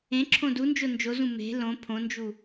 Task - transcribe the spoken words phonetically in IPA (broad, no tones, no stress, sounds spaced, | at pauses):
ẽ ǁʰ õ d u n d͡ʒ o n d͡ʒ o z ũ m e̤ l õ pʰ õ n d͡ʒ u